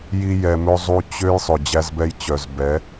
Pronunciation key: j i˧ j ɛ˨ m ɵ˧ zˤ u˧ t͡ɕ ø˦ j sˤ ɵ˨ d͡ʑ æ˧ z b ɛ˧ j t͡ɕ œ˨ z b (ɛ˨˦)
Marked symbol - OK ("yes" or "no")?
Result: yes